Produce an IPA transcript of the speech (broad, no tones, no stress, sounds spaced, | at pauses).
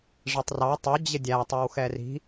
ʐ ɛ tˤ r ɑ tˤ ʊ d͡ʑ ɪ dʲ æ tˤ ʌ w x ɛ r i̤